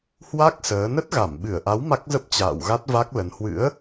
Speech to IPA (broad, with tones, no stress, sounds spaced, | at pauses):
h w a˦˥ k̚ s əː˨˦ n ə˦˥ t̚ ɣ a˧˩ m ɓ ɨ˧˩ ə̯ ʔ a˨˦ w m a˦˥ k̚ z ə˦˥ p̚ t͡ɕ a̰ː˧˨ w ɣ a˦˥ t̚ v a˦˥ k̚ l ə˨˦ n h w ɨ̰˧˥ ə̯